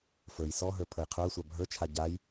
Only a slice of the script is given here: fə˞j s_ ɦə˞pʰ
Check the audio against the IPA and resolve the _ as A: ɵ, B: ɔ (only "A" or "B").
B